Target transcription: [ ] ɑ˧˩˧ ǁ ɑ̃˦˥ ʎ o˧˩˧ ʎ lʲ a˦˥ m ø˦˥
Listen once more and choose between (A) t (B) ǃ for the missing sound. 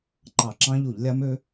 B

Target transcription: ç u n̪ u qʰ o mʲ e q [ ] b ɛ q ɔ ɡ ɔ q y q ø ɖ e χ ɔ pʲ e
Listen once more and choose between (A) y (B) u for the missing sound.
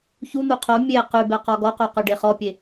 A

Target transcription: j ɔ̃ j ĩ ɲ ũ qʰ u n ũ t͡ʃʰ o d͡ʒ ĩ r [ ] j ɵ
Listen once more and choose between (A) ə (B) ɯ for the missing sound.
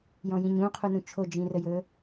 A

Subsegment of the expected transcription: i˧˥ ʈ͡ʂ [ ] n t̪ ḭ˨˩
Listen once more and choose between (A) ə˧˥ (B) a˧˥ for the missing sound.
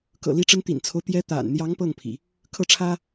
A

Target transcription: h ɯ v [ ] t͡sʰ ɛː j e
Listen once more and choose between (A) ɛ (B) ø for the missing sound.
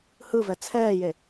A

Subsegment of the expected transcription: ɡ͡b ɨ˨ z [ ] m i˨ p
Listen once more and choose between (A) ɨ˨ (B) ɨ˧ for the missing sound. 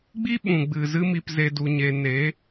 B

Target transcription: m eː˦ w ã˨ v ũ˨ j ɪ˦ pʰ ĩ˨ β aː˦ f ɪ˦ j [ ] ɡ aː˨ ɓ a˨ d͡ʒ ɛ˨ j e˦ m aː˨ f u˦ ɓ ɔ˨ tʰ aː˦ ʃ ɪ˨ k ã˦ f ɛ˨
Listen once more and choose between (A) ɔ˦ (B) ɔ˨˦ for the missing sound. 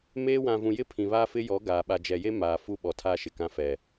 B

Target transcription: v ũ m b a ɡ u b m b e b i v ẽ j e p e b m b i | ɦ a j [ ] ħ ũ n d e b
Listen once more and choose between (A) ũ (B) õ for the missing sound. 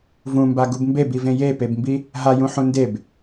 A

